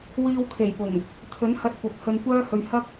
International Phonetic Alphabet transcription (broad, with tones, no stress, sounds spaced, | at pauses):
w iː˧ w kʰ e˨˩ j p ʊ˨˩ ŋ | t̪ʰ ɵ˨˥ n h ɐ˧ t̚ kʷ ɐ˨˥ p̚ h ɵ˧ n kʷ œː˥ h ɵ˧ ɥ h ɐ˥ k̚